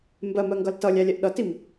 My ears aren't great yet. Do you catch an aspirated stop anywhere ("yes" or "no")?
no